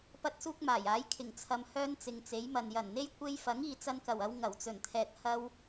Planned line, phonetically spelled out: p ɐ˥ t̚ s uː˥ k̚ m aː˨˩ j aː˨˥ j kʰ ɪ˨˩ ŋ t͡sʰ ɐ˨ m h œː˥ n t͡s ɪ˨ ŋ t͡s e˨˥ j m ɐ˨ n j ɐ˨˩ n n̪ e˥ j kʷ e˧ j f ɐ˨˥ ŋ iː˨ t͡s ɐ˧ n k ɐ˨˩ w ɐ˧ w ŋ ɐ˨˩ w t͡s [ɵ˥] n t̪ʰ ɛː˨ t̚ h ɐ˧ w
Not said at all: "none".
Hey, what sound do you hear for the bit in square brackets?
ɵ˨˩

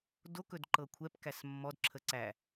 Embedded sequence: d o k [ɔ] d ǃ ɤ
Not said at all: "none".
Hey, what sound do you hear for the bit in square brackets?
ɵ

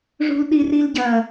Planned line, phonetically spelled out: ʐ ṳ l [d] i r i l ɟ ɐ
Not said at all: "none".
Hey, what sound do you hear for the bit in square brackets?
ɗ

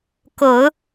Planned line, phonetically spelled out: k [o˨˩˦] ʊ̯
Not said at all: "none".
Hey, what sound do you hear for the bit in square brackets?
o˨˩˦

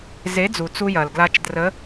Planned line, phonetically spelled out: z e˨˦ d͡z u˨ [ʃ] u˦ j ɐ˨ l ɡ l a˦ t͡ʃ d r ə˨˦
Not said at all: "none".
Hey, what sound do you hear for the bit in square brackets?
t͡s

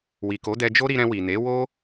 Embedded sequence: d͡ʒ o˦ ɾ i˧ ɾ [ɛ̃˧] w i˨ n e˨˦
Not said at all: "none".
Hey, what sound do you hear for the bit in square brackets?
ɛ̃˧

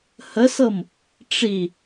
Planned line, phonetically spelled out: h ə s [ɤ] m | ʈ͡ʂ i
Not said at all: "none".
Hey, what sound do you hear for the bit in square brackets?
ɤ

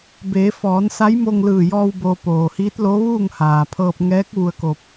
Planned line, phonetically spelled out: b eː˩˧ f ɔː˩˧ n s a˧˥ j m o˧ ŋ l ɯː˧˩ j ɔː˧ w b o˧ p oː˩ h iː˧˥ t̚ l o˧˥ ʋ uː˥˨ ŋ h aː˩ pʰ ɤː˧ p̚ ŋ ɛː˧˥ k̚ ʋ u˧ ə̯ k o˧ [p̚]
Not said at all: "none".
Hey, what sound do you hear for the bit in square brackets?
p̚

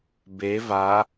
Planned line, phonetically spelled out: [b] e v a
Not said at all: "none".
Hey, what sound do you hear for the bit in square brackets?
b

